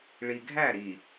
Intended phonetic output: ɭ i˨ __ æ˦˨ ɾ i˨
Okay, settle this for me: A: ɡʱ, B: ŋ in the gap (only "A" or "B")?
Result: A